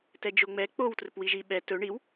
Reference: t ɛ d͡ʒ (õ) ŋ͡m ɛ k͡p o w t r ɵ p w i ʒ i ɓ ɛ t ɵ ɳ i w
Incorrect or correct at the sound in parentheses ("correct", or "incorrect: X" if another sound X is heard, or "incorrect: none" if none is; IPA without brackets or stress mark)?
incorrect: o